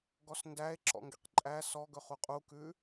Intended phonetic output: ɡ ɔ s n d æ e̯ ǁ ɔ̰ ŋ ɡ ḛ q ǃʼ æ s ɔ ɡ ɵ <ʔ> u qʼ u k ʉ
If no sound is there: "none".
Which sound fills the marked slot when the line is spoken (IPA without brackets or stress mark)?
χ